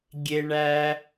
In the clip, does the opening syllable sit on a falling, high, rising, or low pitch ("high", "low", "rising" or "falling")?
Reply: low